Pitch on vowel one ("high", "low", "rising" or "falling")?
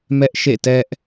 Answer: high